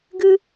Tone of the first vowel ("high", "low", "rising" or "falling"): high